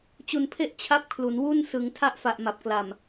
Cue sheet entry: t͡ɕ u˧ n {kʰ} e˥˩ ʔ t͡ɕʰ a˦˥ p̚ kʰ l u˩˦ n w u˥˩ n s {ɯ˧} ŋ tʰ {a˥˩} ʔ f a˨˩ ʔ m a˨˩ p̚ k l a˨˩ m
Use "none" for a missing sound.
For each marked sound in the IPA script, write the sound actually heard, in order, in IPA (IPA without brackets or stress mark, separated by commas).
pʰ, ɯ˩˦, a˥˩